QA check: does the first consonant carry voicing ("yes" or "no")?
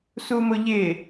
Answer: no